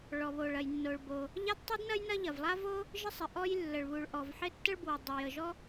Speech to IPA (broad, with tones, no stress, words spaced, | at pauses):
ɭɔ˩βo˩ɭ ɐ˩jnːo˩ɭbo˩ | ʎa˥dtˤy˥dnɐ˥j nɐ˥ʎɐ˩vlˠa˥vo˥ | ʒɪ˥sˤɪ˩ ʔɔ˥j lːə˩ɭβu˩ɭʔɔ˩vħɪ˥ tːə˥ɭbwə˩ dˤo˩jə˩ʒɔ˥